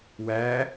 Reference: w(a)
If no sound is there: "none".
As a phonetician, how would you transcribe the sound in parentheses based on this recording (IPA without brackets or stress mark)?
æ